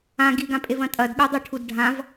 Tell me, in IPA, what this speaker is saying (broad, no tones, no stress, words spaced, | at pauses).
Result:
ã ɡiɡãpʼevɐ̃ tʼɐdɠʉdˤʉʈʰud ɖʱãv